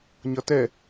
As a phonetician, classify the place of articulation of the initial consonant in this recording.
palatal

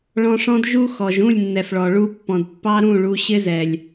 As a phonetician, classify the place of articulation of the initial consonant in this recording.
retroflex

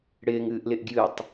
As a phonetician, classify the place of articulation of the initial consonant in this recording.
retroflex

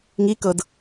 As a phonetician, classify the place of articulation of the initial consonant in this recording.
velar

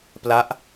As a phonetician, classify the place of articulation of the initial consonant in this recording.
labial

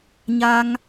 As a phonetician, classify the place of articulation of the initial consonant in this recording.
palatal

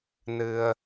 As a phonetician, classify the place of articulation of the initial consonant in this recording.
alveolar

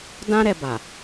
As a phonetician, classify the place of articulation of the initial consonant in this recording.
alveolar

